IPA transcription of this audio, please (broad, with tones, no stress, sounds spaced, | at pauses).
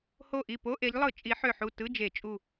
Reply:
h o˧˩ ʔ i˧˩ p o˧˥˧ ʔ e˨˦ ʎ lˠ ɯ˧˩˧ t͡ʃʼ i˨˦ ħ ø˧˩ ħ u˧˩ t ɯ˧˥˧ d͡ʒ e˧˩˧ t͡ʃʼ u˧˩